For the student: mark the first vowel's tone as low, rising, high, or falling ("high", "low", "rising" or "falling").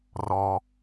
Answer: low